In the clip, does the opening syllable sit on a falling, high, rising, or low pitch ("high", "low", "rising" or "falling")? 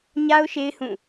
high